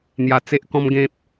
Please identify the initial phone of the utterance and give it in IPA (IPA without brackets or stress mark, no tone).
n̪